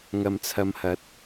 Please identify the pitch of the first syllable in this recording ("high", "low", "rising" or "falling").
low